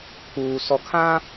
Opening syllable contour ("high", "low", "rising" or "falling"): low